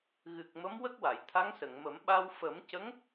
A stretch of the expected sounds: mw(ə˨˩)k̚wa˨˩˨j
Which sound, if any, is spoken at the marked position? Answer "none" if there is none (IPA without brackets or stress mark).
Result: ə˦˥